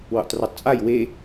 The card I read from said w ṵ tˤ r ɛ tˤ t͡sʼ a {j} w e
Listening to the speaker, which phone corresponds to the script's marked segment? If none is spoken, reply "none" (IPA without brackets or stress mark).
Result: j